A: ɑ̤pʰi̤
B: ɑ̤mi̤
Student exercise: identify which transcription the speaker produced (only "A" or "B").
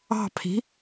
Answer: A